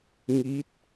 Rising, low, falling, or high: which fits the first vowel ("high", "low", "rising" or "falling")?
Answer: rising